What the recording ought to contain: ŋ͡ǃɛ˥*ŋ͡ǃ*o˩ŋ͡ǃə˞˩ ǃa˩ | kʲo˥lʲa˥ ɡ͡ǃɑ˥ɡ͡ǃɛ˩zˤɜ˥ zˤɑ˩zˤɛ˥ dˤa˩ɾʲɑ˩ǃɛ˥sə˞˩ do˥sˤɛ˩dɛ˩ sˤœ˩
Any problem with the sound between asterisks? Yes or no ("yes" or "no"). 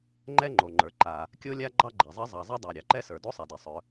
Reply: no